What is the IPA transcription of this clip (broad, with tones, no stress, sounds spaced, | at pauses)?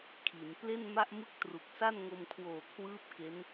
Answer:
kʰ i˩˦ n p l e˥˩ n m a˥˩ ʔ m ɯ˥˩ k̚ t r u˨˩ k̚ s a˥˩ n ŋ o˧ m kʰ w oː˨˩ kʰ w ɯː˦˥ p̚ k e˦˥ n